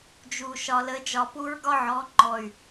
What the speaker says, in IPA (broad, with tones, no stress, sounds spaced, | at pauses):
d͡ʒ u˨ ʃ ɒ˨ l ə˨˦ d͡ʒ ɒ˨ p u˦ ɹ ɡ ɒ˦ ʕ ɔ˨˦ ŋ͡ǃ ɔ˨ y̯